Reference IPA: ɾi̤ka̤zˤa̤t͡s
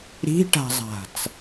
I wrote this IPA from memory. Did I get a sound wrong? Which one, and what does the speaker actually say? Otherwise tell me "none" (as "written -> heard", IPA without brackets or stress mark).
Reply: k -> ʈ